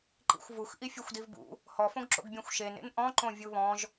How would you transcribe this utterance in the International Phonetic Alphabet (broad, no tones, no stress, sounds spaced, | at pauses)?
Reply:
ǃ ḭ xʷ v u x ʔ i fʲ u xʷ d i v b ṵ | h ɔ f õ ɡ ǁ o̰ ɡ bʲ ẽ xʷ ʃ e n ḛ n ʔ ɔ̃ ǃ õ vʲ u β ɔ̃ ʒ